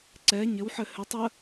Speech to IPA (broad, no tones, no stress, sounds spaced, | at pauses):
ǀ ɛ ɲ ɘ w ħ ɘ h ɘ tˤ ə